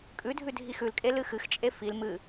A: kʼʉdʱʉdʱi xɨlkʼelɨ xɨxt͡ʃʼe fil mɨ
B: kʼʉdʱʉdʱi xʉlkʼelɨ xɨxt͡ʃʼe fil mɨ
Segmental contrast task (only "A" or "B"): B